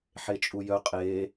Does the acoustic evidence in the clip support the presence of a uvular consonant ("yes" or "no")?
yes